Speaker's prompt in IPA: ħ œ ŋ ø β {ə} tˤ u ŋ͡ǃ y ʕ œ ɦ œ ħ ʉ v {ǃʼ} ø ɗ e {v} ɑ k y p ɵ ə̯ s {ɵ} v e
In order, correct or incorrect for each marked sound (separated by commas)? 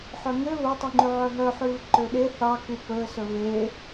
incorrect, incorrect, incorrect, correct